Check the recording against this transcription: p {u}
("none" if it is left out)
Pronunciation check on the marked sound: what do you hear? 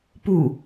u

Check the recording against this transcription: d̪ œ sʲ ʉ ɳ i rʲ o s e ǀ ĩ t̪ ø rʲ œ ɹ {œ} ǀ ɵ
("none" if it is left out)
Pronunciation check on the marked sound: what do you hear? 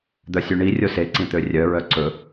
œ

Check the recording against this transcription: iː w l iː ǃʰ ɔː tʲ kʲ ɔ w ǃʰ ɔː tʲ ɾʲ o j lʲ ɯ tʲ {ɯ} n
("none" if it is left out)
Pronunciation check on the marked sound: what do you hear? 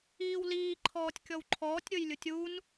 u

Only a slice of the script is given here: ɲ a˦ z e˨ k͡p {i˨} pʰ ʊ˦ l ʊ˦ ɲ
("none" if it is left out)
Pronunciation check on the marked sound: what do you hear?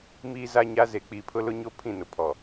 i˨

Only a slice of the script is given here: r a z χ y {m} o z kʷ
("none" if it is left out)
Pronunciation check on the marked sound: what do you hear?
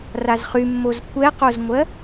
mː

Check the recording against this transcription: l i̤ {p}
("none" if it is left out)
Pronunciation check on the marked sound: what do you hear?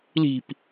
p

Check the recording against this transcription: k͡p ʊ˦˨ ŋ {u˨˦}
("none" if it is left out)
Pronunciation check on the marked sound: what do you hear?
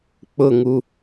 u˦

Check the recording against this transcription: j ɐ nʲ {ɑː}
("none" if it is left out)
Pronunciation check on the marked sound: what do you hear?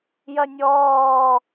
ɔː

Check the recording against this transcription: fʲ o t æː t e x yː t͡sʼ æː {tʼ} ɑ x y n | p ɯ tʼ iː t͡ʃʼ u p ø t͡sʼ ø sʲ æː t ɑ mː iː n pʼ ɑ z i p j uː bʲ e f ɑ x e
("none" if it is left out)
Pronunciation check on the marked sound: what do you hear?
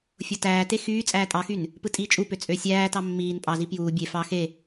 tʼ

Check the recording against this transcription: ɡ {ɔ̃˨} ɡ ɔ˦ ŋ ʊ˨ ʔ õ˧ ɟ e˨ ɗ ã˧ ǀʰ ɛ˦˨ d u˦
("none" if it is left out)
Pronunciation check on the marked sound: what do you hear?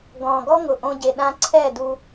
ɔ̃˨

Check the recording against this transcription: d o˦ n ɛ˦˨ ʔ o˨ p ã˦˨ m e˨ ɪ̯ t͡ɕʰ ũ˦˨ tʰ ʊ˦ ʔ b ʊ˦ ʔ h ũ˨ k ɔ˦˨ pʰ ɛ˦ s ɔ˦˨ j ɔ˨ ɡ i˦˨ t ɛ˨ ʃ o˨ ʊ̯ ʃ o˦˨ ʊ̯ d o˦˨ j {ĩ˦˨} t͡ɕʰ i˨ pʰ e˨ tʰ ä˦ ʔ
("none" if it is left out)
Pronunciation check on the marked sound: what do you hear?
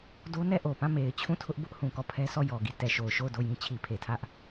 ĩ˦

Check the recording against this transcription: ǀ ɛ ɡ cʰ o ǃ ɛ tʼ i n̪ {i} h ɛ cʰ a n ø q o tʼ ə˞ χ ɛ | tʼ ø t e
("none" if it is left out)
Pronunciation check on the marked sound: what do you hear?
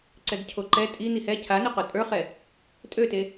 i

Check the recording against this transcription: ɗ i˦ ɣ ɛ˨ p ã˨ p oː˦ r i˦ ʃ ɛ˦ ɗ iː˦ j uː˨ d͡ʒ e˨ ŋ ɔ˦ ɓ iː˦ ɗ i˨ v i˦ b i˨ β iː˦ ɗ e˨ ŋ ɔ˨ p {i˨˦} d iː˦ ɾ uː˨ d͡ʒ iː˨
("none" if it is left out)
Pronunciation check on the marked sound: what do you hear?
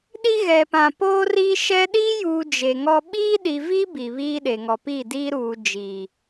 i˦˨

